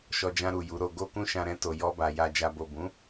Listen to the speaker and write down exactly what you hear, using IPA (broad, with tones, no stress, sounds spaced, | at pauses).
ʃ ɔ˧ d͡ʒ ã˧ ɾ u˨ j u˨˦ ɾ o˧ ɡ o˦ k ũ˦ ʃ ã˧ ɾ ɛ̃˧ t o˨ j ɔ˧ b a˨ j a˨ d͡ʒ a˨ b o˨ b ũ˨˦